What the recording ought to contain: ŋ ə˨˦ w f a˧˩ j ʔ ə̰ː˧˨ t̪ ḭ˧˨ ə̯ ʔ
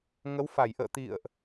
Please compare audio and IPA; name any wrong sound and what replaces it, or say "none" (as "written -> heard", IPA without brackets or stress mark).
none